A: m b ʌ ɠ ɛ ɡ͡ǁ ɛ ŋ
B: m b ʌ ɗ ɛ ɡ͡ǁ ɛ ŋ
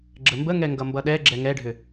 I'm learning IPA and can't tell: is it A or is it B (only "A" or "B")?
B